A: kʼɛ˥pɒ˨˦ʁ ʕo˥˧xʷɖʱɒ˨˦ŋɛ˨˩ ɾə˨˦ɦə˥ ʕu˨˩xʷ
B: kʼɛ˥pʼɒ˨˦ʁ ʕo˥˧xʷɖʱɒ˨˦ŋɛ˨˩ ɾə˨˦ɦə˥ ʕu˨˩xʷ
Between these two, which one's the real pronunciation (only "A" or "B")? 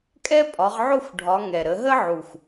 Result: B